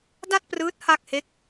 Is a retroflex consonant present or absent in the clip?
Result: absent